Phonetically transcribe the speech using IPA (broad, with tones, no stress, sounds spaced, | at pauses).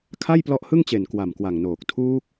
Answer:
kʰ a˥˩ j p l ɔ˦˥ ʔ h ɯ˥˩ ŋ t͡ɕ e˨˩ n k w a˨˩ m k w a˨˩ ŋ n oː˨˩ k̚ tʰ uː˦˥ k̚